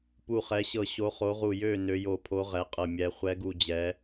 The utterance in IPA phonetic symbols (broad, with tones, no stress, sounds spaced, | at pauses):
p u˧˩ χ ɛ˨˦ ɕ ɤ˧˩ ɕ o˨˦ χ o˨˦ ʁ u˧˩ j ø˧˩ n ø˨˦ j o˧˩ pʰ o˨˦ ʁ ɛ˨˦ qʼ ɤ˧˩ mʲ ɛ˨˦ χʷ ɛ˨˦ ɡ u˧˩ d͡ʑ ɛ˨˦